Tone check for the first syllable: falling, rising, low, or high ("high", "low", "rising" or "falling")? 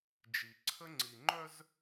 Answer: low